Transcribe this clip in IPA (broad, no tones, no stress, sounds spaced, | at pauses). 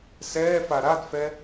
s ɛː f a ɾ a d f ɛ